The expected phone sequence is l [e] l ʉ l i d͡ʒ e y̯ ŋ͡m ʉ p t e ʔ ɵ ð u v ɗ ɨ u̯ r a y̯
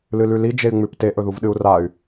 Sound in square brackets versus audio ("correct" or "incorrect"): incorrect